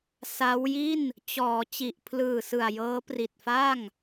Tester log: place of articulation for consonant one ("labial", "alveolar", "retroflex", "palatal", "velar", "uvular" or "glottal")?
alveolar